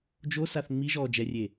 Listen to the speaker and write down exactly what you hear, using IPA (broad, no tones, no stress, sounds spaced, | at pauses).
d͡ʒ o s a θ ŋ͡m i ʒ ɔː d͡ʒ ɛ rʲ e